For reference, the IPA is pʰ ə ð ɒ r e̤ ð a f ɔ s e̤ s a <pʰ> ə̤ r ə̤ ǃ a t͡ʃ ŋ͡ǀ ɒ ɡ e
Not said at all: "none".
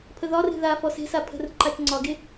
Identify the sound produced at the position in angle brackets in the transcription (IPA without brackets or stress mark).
pʰ